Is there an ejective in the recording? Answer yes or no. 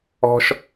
no